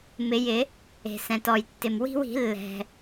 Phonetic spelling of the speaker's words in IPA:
m ɪ˨˩˦ j ɪ˨˩˦ | e̤˩ s ɛ̃˩ t ɔ˩ j tː ɪ˩ m w i̤˦ w i̤˨˩˦ lː ɛ̤˩

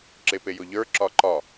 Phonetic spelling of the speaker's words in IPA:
ǁ e p e j ʊ ʎ ə˞ ǁ ɒ ǃ ɒ

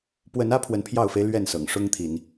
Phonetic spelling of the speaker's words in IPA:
p w ə˨˦ n ä˦ pʰ w ə˨˦ n pʰ j ɑ˥˨ ʊ̯ f e˦ ɪ̯ l ɥ ɛ˥˨ n s ɤ̰˨˩ ŋ ʂ ʊ˦ ŋ t̪ʰ i˨˦ n

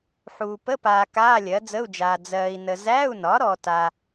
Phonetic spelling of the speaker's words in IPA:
ħ uː˨ p ə˧˥˧ p aː˨ k aː˧˥˧ lʲ ɜ˩˥ d͡z ə˧˥˧ u̯ d͡ʒ aː˨ d͡z ɜː˨ i̯ n ə˨ z æ˧˥˧ u̯ n ɒ˩˥ ɾ ɔ˨ t a˨

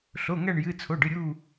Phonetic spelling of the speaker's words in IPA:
ɬ o˩˧˩ ŋ æ˦˨ ɳ j ɨ˩˧˩ t͡sʰ o˩˧˩ ɖ ɨ˩˧˩ ɾʲ u˦˨

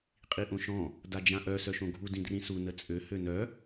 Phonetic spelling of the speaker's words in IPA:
qʼ i ʔ õ ʃ ɔ̃ | d a d͡ʒ ã ʔ œ s œ ʃ õ ɡʱ u d ĩ d r ĩ s u n ə t͡sʼ ø h ø n œ

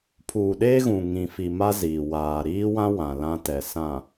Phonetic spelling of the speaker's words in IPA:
pʰ uː˨ ɗ eː˦ ɣ ũ˨ ŋ ĩ˨ f i˨ m a˦ z iː˨ w aː˨ ɾ iː˦ w ã˦ w ã˨ l ã˦ t ɛ˨ s ã˨

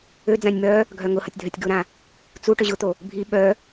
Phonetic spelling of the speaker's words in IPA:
ø d͡z ã nʲ m œ | ɡʱ œ ŋ ʊ h ɐ tʲ dʱ œ tʲ ɡ ʊ ɾ ã | t͡s u ʈ ø ʑ ʊ t̪ o | bʱ i ɓ œ

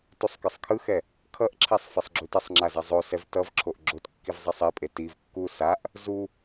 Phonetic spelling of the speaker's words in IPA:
t u sˤ k ɯ sˤ kʰ ɯ x ɛ | kʰ ʌ ʔ ǁʰ e sˤ f ɛ sˤ ɡ͡ǁ u t ʌ sˤ ŋ͡ǁ a z a zˤ o s ɛ v t ʌ v ǁʰ o ʔ ɡ͡ǁ o t kː i v zˤ ɛ sˤ i pʼ e t i v kː u s a ʔ | z u

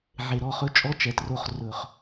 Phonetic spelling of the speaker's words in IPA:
ʕ e˨ ɾ ɔ˨˦ χ ɵ˦ t͡ʃʼ ɔ˦ t͡ʃ ɛ˨ t r o˧ χ r ɵ˨ χ

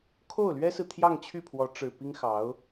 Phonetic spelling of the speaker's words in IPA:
kʰ o˥˩ ʊ̯ l ɥ ɛ˥ s ɹ̩˨ t̪ʰ j ɑ˥˧ ŋ t͡ɕʰ y˥˩ pʰ w ɔ˧˥ ʈ͡ʂ ɻ̩˨˩ p i˥ ŋ x ɑ˧˥ ʊ̯

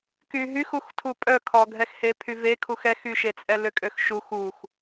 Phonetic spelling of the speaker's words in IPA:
k y ɦ y x u x tʰ u pʼ œ kʰ ɔ ɡʱ ɛ x h e pʰ y v e kʰ u x ɛ x y ʃ e t͡sʼ ɛ l ø kʼ ø x ʃ u x u x

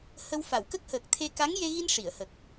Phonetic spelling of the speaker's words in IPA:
h ə˧ w f a˨˩˨ w k ə˦˥ k̚ h əː˨˩ k̚ t̪ʰ e˧ k a˧˥ ŋ j e˧ ɣ i˧ n ʂ i˨˩˨ ə̯ h ə˨˩ k̚

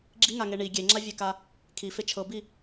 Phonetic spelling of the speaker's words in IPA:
ɡ͡ǁ i ŋ a ŋ e ɳ i ɡʲ e ŋ͡ǁ a vʲ e k a | kʰ i f e t͡ʃʰ ɤ b i

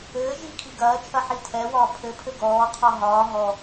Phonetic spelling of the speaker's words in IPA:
ɘː ʒ iː kʰ i ɡ ɐː t͡ʃʰ ɐ ħ i tʰ ɛ w ɒː pʰ ɘ pʰ ɘ ɡ ɔː qʰ ɔ ɦ ɒː ɦ ɔ

